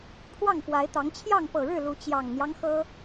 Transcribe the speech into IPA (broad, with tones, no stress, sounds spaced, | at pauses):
pʰ w ɑ˥˨ ŋ f w a˨˦ ɪ̯ t̪ ɑ˨˦ ŋ t͡ɕʰ j ɑ˥˨ ŋ p ɤ˨˩ ɻ ɻ̩˥˨ l u˨˦ t͡ɕ j ɑ˨˩ ŋ n̪ j ɑ˦ ŋ x ɤ˦